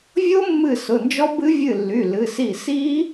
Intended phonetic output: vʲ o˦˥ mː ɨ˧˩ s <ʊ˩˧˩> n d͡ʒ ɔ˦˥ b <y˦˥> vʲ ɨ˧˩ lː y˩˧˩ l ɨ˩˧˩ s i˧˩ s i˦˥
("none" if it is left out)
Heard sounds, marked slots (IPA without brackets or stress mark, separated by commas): ʊ˩˧˩, ɨ˦˥